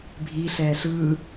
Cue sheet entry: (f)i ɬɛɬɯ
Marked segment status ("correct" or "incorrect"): incorrect